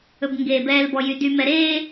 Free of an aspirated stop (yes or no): yes